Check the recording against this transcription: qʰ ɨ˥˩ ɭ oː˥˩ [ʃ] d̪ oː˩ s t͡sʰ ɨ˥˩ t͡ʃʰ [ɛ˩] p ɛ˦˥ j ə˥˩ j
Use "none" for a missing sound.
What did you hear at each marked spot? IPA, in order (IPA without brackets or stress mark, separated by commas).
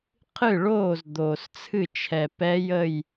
z, ɛ˩